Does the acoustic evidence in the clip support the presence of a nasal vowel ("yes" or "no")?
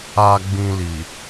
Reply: yes